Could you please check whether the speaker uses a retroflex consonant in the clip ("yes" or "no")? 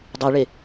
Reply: yes